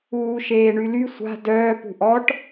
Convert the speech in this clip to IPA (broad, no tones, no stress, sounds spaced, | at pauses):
uː ʃ eː ɳ y l y sʷ a̤ d œː p ṳ ʔ ɔ ʈ